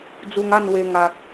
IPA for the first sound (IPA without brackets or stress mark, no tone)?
d͡z